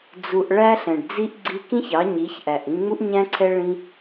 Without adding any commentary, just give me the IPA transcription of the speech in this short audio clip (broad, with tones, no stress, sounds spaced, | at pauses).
d͡z u˧ ʔ ɭ æ˦ ɬ ɛ̃˨ ɖ d͡z i˦ ʔ ɡ͡ǀ i˧ k ĩ˦ ç ɑ˨˦ ɲ i˨˦ ç ʔ æ˨ ʔ ĩ˧ ŋ͡m u˦ ʔ ɲ æ̃˦ ǀʰ ɛ˦ ɭ ĩ˦